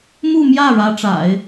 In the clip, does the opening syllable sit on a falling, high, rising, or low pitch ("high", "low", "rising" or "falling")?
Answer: falling